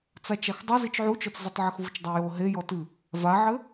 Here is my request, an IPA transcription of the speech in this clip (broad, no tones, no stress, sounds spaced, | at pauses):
t͡s a t͡ʃ a x dˤ ɘ z i t͡ʃ ʕ u t͡ʃ ɔ t͡s z ɨ tˤ ʕ ɘ x v u t͡ʃ dˤ a j o ɦ e j ɔ t ɨ | v a ʕ ɘ